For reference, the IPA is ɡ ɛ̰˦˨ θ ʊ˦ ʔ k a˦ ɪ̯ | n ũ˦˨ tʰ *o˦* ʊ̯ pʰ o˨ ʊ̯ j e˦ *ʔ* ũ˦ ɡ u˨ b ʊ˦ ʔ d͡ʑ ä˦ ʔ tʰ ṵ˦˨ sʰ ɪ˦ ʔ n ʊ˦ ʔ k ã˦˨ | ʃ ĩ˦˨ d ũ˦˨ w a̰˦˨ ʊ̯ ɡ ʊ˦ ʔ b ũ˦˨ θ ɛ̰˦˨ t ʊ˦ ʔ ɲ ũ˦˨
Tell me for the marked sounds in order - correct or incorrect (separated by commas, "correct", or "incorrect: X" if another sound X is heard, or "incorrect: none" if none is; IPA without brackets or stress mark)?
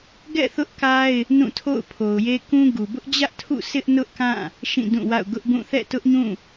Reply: incorrect: o̰˦˨, incorrect: k